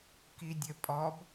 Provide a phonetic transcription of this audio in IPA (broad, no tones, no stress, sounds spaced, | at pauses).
k i dʲ ɘ pʼ ɔ b